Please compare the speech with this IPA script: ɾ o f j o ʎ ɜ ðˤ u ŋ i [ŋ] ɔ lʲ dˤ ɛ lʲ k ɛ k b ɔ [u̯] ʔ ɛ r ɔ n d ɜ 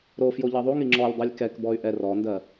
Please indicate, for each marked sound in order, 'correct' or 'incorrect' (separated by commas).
incorrect, incorrect